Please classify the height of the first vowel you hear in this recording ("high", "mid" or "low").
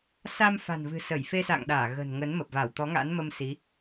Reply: low